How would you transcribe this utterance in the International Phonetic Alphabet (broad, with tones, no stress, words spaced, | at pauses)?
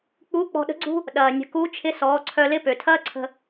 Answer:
k͡pu˧˥k͡pɔ̤˧ɗə̤˧˥ɡ͡ǀṳ˥ | ɗɐː˩nʲə̤˩˧ku˧˥t͡ʃʰɪ˧˥ sɔː˩˧ǀʰœ˧ lɪ˧˥pø˩tʰɐː˥ ǀʰə̤˧